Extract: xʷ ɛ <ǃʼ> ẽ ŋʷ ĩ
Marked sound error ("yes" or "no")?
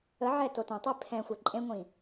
no